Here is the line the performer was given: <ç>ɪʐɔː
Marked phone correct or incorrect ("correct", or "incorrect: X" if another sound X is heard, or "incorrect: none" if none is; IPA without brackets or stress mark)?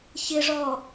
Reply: correct